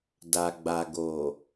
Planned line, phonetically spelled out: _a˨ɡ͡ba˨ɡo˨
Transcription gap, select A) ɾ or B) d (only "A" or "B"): B